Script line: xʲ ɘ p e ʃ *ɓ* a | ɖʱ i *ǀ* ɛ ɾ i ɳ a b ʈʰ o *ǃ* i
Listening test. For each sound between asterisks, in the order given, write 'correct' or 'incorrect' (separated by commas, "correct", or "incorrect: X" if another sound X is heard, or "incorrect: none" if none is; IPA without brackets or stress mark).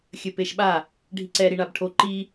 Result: correct, correct, correct